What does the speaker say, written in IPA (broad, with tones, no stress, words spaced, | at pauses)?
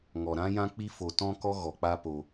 ŋɔ˨ɾã˦jã˦ k͡pi˦fo˧tɔ̃˦kɔ˦ ɣɔ˧k͡pa˦po˧